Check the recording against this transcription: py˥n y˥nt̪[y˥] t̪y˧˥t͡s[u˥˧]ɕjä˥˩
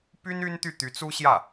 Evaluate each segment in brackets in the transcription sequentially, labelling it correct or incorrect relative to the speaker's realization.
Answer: incorrect: y˥˩, incorrect: u˥

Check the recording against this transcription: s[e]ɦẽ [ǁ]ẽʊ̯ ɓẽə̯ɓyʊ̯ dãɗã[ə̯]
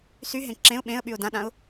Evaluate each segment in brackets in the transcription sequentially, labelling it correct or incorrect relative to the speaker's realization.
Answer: incorrect: y, correct, incorrect: ʊ̯

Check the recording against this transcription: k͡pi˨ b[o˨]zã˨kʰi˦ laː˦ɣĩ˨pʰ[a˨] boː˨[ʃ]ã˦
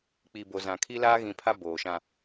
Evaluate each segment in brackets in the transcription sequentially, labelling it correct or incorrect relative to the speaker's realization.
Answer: correct, incorrect: a˦, correct

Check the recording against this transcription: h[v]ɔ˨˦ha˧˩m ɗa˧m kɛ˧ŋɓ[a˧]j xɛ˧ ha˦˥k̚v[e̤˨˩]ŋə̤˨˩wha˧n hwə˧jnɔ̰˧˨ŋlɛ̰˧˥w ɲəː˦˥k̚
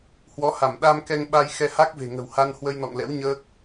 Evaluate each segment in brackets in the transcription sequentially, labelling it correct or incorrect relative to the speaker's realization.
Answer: incorrect: w, correct, correct

